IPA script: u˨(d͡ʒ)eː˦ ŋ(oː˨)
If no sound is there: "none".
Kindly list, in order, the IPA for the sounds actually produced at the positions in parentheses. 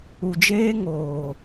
d͡ʒ, oː˨

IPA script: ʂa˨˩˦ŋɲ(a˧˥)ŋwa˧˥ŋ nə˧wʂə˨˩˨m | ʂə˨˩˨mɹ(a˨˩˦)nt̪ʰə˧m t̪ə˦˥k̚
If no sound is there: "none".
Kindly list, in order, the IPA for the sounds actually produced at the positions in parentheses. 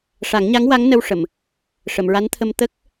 a˧˥, a˧˥

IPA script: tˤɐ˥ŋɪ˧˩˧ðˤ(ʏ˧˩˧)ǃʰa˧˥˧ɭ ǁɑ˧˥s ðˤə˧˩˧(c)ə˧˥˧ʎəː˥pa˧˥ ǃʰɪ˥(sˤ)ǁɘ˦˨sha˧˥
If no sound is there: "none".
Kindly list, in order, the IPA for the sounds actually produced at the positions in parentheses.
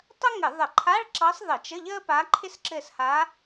ə˧˩˧, t͡ʃ, s

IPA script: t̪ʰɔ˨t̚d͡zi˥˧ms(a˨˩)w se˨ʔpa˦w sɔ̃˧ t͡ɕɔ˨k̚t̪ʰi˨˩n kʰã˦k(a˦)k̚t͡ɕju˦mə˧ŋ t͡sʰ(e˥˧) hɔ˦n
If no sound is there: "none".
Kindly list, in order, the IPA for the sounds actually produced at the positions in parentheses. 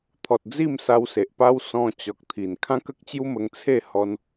a˧, ə˦, e˥˧

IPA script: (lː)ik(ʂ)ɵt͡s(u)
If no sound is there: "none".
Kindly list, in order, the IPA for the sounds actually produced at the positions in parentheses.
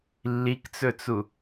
lː, t͡s, u

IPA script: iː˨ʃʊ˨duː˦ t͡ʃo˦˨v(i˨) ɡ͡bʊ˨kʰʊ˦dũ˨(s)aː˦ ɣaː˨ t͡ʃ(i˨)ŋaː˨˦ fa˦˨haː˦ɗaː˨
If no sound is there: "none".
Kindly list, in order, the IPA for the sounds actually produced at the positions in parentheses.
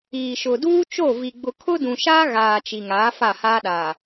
i˨, ʃ, i˨

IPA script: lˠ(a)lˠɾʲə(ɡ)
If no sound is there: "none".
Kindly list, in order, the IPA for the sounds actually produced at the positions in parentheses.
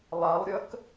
a, k

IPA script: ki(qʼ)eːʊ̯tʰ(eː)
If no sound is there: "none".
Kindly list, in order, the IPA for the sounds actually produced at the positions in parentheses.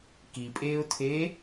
pʼ, eː

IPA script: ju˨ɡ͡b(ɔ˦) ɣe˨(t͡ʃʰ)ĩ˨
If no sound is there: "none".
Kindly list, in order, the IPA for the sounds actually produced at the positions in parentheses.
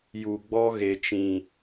ɔ˦, t͡ʃ

